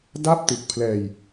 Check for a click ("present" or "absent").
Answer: absent